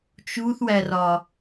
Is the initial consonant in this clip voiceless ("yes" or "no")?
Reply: yes